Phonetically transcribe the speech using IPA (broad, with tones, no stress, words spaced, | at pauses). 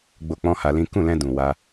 ɡ͡bo˧ k͡pɔ̃˦ha˧lĩ˦ kũ˦˨lɛ̃˧ dũ˨ wa˧